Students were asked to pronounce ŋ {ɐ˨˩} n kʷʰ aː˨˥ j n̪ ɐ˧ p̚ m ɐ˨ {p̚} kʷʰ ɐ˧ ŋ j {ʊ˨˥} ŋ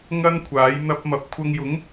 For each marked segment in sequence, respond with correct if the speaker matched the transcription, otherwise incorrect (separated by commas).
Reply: incorrect, correct, correct